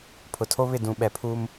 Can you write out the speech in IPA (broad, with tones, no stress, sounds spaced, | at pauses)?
pʰ ʊ˨ tʰ o˦ β ɪ˦˨ d ũ˨ ɓ ɛ˨ pʰ uː˦ m